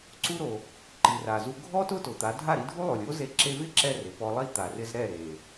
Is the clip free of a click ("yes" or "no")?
no